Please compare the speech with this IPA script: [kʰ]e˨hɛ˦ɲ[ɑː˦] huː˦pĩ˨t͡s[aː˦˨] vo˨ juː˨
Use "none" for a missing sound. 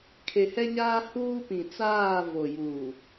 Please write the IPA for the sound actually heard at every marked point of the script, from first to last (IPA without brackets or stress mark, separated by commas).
kʰ, aː˦, aː˦˨